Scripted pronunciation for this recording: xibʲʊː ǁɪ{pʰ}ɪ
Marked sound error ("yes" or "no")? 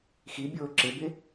yes